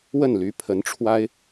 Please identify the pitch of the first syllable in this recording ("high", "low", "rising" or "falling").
falling